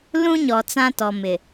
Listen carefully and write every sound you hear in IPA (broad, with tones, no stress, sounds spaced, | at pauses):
l ũ˦ ɲ ɔ˨ t͡s ã˦ t ɔ˨ m ɪ˨